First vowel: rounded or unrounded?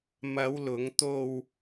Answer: unrounded